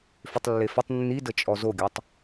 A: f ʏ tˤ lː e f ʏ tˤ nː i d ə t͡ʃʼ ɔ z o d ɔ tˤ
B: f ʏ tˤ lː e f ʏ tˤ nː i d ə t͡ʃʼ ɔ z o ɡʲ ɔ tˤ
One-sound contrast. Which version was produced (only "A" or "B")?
B